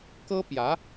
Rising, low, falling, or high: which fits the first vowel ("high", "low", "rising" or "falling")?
high